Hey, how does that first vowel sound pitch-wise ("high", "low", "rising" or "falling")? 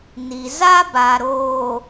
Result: low